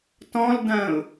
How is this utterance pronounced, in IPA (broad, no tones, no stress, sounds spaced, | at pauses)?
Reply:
t ɔ̃ l d ɐ̃ː ʊ̯